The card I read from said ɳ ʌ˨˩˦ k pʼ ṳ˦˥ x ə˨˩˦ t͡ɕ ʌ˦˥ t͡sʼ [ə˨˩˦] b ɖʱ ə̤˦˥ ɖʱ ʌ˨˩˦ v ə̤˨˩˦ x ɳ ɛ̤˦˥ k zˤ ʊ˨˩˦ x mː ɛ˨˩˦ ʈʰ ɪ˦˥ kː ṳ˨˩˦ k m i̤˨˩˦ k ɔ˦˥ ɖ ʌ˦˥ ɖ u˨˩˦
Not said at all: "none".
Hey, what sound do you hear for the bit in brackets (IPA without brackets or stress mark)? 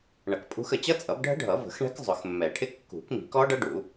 ʌ˨˩˦